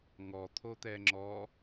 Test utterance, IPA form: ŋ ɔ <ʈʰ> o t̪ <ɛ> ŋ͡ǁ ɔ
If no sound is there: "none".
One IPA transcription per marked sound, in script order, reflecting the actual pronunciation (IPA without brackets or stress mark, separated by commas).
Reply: t̪ʰ, ɛ